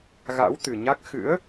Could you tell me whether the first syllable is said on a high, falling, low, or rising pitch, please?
rising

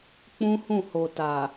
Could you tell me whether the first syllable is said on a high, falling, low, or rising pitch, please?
high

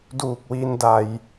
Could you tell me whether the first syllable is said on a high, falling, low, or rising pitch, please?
low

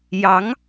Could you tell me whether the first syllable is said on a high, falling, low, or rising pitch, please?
rising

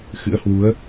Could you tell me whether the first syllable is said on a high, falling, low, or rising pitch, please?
rising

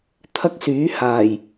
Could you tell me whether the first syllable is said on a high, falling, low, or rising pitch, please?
high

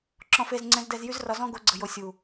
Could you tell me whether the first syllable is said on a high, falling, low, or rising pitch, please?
low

